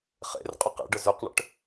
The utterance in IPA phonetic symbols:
χ ḛ r qʼ ʊ q ḛ ɖ ə z ø q ɳ ə̰ ʈ

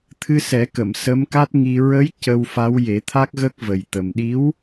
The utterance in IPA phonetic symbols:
t̪ʰ ɨ˧ s ɛ˨˩˦ k ə˨˩˨ m s ə˧˥ m k a˦˥ t̚ ŋ i˧ ɹ ə˧˥ j c ə˧ w f a˧˥ w j e˨˩˦ t̪ʰ a˦˥ k̚ ɣ ə˦˥ k̚ v ə˨˩ j t̪ ə˨˩ m ɗ i˧˥ w

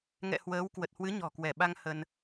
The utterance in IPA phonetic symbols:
ŋ ɛ̰˧˨ h w əː˨˦ w k w ə˨˩ t̚ h w ɨ˨˦ ɲ ɔ̤˨˩ k w ɛ˧˩ ɓ a˧ ŋ h ə˧ n

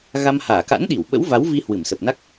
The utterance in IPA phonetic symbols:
ɣ a˧ m h aː˧˩ k a̰˧˥ n ɗ i˧˩ w ɓ ə̰˧˥ w v a˨˦ w v i˧ h w ɨ˧˩ m s ə˨˩ p̚ n a˦˥ k̚

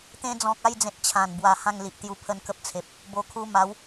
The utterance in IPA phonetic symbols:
t̪ ẽ˧ d͡z ɔ̃˨ k̚ a˥˧ j d͡z ẽ˨ t̚ t͡ɕʰ ã˨˩ n b w a˧ h ã˥˧ ŋ l i˨ ʔ t̪ j u˧ pʰ ə˦ n k ə˦ p̚ t͡sʰ e˨ p̚ | b o˧ kʰ u˦ m a˨˦ w

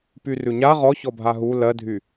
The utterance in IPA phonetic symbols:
p y r ʉ ɲ a ʁ ɔ ç ɔ bʱ a ɦ u l ɜ dʱ y

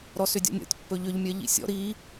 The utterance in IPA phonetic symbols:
ɾ ɔ s ʏ dʲ ɔ̰ nʲ ɔ̰ tʲ pː ɵ ʎ ʏ ʎ mʲ ɜ ʎ ḭ sʲ ɔ̰ ɾ i

